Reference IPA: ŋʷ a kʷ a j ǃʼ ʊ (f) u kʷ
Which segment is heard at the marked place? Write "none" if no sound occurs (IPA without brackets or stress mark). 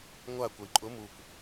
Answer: m